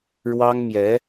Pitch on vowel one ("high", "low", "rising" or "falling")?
high